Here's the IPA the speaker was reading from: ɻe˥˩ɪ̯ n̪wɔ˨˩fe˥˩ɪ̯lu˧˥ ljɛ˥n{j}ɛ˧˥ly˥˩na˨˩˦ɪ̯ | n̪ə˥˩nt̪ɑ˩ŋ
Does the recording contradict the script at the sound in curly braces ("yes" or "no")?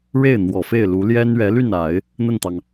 yes